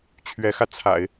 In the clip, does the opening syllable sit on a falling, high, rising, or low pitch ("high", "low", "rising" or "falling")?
rising